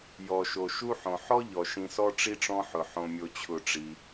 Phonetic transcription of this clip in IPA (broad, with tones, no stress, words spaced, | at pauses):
jɔ˩ʃo˩ ʃu˦ħõ˩ ħɔ˥ ʎɔ˩ ʃĩ˨sɔ˦ ʈ͡ʂi˥ʈ͡ʂɔ̃˦ħʊ˩ ħõ˨mʲo˨t͡ɕʰʊ˨ʈ͡ʂi˩